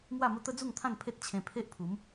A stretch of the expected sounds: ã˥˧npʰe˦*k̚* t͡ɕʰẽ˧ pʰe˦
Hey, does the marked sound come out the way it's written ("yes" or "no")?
no